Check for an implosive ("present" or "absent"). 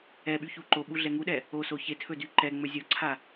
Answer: present